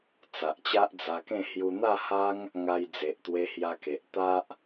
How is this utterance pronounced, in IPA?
t͡s a˨ ʔ t͡ɕ a˦ ʔ d͡z a˧ k ẽ˥˧ h j u˧ n̪ a˥˧ h a˦ ŋ | ŋ a˧ j d͡z e˨ ʔ t̪ w e˧ h j a˧ k e˨ ʔ t̪ a˦ ʔ

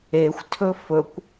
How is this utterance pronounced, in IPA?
e xʷ tʰ ɵ f ɵ kʷ

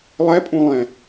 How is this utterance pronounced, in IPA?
lˠ ɛ pʼ ũ lˠ ɛ̃

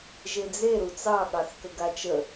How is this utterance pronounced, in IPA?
ʒ e d͡z e ɾ u t͡s ɑ ɠ ɑ θ k ə ɡ a t͡ʃ ə

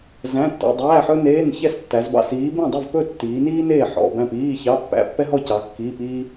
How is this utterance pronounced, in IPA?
z æ̃˧˥˧ tː ɔ̰˧˥˧ dˤ æː˧˥˧ ħ ɵ˥ n eː˧˥˧ n ç ɛ˥˨ s tː æ˨˦ z b ɑ̰˧˥˧ s iː˨˦ b ẽ˥˨ dˤ ɵ˥˨ v p ɵ˥˨ tː iː˨˦ n iː˥ n eː˥˨ ħ ɔ̰˧˥˧ b æ̃˥˨ p iː˧˥˧ ç ɑ˧˥˧ pː æ̰˧˥˧ pː ɛ˥ ɦ ɔ˥˨ c ɑ˨˦ kː iː˧˥˧ p iː˥

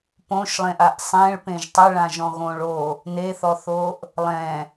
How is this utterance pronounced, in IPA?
p õ ʃ lˠ ẽ ʔ a ʔ sˤ ẽ ɭ p ẽ ʒ tˤ ɛ ɭ ã ʒ ɔ̃ ɣ õ ɭ o | n e θ ɔ θ o ʔ | lˠ ɛ̃

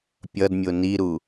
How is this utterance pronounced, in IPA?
pʲ ʌ d mʲ o n i ɾ u

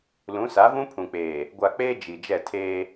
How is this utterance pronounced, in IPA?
l ũ˨˦ s a˨˦ v ũ˦ pʰ ũ˨ k͡p eː˨ | ɡʷ a˨ k͡p eː˦ d͡ʒ i˨ d͡ʒ ɛ˦˨ tʰ eː˦

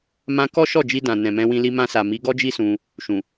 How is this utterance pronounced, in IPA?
m ã˧ k ɔ˦ ʃ ɔ˦˨ d͡ʒ i˧ d ã˨ n ɛ̃˨ m ɛ̃˧ w ĩ˧ l i˧ m ã˧ s a˨ m i˨˦ ɡ ɔ˦ d͡ʒ i˦ s ũ˧ | ʃ ũ˨

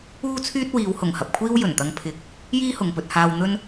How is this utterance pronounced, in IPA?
uː˥ t͡sʰ yː˥ t̚ w iː˨˧ w h ʊ˨˩ ŋ h ɐ˨ p̚ kʷʰ iː˥ w j ɵ˨˩ n t̪ ɐ˧ ŋ pʰ ɪ˨˥ k̚ | j iː˥ h ʊ˨ ŋ p ɵ˧ t̚ h aː˧ w n̪ ɵ˧ n

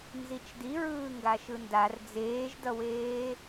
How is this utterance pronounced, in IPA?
n z i t͡ʃ d i ɹ ɯː ŋ ɡ a ʃ ɯ n d a r d͡z eː ʒ d ʌ w eː

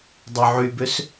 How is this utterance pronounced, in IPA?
dˤ ɵ ʕ y b ø s

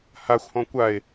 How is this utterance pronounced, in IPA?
h a xʷ h ɔ̃ kʷ a e̯

